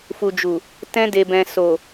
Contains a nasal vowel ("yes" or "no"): yes